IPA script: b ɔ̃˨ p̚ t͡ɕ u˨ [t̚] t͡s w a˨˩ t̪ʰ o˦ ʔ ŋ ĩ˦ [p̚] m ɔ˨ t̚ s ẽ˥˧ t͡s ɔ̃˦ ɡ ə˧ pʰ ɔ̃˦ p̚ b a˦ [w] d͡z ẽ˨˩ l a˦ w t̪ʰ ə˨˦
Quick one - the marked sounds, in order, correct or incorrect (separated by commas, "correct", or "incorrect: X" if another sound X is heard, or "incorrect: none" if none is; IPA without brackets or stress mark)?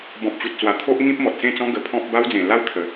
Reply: correct, correct, correct